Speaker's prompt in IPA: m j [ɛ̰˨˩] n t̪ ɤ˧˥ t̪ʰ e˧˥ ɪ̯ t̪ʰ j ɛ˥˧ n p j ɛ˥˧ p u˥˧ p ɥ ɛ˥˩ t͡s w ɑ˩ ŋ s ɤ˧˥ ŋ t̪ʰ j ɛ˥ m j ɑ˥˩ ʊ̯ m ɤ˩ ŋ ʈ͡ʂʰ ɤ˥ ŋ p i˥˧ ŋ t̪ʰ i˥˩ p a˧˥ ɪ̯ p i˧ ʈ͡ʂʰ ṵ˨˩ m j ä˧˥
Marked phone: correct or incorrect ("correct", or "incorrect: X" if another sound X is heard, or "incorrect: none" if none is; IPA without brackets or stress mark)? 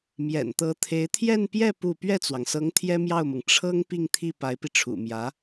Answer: correct